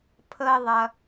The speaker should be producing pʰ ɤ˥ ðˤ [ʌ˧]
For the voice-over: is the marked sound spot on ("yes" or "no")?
yes